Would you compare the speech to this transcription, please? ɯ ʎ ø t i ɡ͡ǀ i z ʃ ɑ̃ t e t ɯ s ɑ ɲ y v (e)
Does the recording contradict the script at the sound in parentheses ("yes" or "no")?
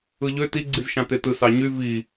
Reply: yes